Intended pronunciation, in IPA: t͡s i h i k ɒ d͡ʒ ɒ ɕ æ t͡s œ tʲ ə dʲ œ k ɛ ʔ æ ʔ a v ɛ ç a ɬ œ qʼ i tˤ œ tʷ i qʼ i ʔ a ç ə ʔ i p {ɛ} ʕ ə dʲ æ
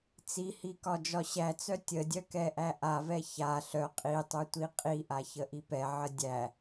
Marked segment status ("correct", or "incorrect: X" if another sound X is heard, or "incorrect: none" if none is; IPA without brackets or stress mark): correct